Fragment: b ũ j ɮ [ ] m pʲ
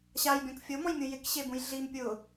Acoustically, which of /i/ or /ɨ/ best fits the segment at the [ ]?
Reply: i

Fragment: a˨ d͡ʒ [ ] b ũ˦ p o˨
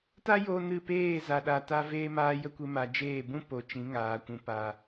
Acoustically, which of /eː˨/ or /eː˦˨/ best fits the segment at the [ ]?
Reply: eː˦˨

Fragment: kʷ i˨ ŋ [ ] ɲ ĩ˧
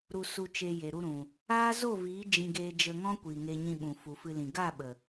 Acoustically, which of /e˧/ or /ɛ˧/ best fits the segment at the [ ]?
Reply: e˧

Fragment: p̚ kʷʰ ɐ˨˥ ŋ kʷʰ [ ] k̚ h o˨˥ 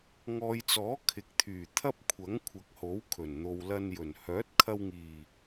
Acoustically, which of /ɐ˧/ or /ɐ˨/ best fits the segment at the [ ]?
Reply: ɐ˨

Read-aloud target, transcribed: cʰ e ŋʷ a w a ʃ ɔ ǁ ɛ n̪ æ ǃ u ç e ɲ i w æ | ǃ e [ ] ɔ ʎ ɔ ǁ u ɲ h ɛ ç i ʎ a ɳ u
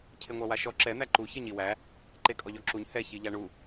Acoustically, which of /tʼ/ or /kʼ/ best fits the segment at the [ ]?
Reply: kʼ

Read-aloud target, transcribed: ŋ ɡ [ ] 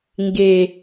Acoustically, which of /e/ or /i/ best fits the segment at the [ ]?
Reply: e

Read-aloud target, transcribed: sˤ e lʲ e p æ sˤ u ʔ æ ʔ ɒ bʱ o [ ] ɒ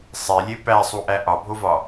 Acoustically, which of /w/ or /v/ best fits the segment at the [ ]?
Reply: v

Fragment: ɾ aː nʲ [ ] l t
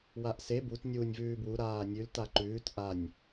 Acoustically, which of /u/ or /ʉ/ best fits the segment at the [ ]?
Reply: ʉ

